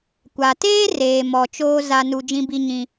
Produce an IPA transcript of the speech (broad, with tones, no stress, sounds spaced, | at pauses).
kʷ a˨ t eː˦ r eː˨ m ɔ˨ t͡ʃ oː˦ z a˦ n u˦ d͡ʒ ĩ˦ b i˦ ɲ ĩ˦